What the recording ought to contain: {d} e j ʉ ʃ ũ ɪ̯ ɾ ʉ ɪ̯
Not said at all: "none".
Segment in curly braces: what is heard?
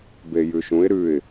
b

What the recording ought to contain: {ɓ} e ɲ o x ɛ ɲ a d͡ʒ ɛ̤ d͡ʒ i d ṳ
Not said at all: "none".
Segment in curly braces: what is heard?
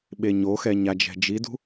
ɓ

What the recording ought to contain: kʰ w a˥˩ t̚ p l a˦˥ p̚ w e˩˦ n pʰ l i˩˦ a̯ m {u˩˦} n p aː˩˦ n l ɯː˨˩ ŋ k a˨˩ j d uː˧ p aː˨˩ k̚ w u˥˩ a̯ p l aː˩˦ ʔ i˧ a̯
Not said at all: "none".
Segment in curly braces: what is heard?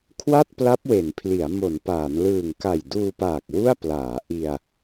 o˩˦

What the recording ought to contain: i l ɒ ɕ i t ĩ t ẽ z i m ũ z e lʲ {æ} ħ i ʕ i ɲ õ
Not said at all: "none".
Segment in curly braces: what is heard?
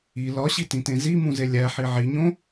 æ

